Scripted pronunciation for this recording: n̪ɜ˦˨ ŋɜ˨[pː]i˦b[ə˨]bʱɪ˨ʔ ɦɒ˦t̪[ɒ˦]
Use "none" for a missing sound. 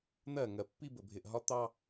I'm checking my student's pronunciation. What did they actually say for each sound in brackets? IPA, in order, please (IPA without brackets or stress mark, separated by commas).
pː, ə˨, ɑ˦